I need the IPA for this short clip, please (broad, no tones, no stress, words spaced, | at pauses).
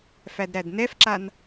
fædɾædnɛfǁan